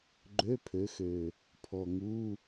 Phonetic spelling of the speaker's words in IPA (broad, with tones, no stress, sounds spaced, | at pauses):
ɡ͡ǃ ø˧˥˧ pʰ ø˨˦ x ø˨˩ | pʰ ɔ˨˩ ŋ u˧˥˧